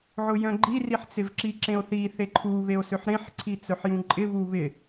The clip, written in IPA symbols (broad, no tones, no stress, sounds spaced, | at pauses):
ʕ ʊ j œ̃ ɡ͡ǃ i r i ħ t͡s ɪ v ǁ i ǁ ẽ o̯ θ i θ e ǃʰ u β e o̯ s ø ħ ɾ ẽ ħ ǀʰ i t͡s œ ħ j ũ ǃʼ ɪ β u β ɪ